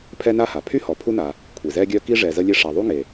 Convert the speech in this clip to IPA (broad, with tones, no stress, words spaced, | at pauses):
pʰɛ˦na˦ha˩ pʰy˥hɔ˨ pʰu˥na˨ | kʷʰi˩zɛ˦ɡʲœ˦ ki˥ʐɛ˨zə˦ lʲe˦ʂa˨ðˤu˥ŋe˩